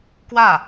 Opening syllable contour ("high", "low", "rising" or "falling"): falling